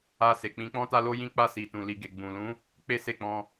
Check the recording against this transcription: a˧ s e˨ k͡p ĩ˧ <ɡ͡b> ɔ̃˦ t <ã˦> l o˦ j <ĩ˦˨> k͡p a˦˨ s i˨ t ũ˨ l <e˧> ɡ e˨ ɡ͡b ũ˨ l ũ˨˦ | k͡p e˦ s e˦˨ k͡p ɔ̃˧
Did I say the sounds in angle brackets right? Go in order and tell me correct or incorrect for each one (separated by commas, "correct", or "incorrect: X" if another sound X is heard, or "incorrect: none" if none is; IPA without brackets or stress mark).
incorrect: k͡p, incorrect: a˦, incorrect: ĩ˦, incorrect: i˧